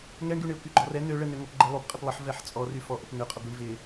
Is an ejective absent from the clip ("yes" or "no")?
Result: no